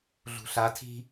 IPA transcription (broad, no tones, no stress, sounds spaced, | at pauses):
ɮ ṳ ɬ a tʰ i̤